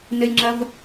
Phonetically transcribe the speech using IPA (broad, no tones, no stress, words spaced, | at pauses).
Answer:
nɘlʲŋ͡ǁɐv